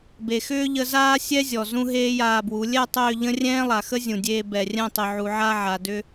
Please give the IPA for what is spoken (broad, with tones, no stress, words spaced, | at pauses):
be˨xʏː˦ʎə˧zaː˦ sʲɛ˦zʲɔ˨ zũ˧ ɦeː˦jaː˧bwu˨˦ lʲɛ˦˨tˤʏː˦˨ ʎə̃˦rʲɛ̃ː˦lˠa˨xə˦ zʲũ˨dʲeː˧ bɛ˨rʲɛ̃˦˨tˤʏ˨ ʕu˨ʕa˧ ʕa˨dʏ˦